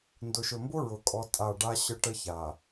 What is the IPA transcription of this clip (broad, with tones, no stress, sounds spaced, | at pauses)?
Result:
n d ʊ˨ ʃ ɵ˨ m b ʊ˦ ɹ ʊ˨ kʼ ɔ˦ tʼ a˦˨ ɖ a˦ ɕ ə˦ ʈ ə˦ ç a˨